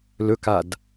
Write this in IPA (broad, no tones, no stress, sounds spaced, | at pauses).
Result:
l ɵ k a d